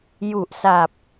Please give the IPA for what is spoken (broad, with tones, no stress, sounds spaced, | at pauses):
j u˨˩ ʔ s a˨˩ p̚